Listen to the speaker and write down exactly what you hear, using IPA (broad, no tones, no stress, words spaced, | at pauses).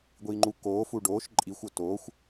ɡʷiːŋ͡ǃu koːfu ɖoːʃ ǃʼixʷ otoːxʷ